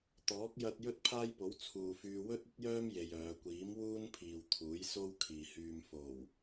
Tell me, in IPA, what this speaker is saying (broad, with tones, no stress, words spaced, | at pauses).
t̪ɔː˨˥k̚ jɐ˧t̚ jɵ˥t̚pʰaː˥jpo˨˥w t͡sʰuː˨fyː˧ wɵ˥t̚ɵ˥t̚jœː˥m je˧jœː˨˧ kʷiː˨˥mwuː˥npʰiː˨w t̪ʰuː˨˥jso˥wkʰiː˨hyː˧m fo˨˩w